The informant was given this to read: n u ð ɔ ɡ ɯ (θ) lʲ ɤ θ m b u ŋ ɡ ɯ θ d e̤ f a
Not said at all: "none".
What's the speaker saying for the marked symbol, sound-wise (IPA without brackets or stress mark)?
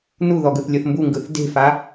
θ